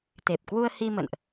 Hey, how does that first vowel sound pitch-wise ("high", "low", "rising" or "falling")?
low